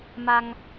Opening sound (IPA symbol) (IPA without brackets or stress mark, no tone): m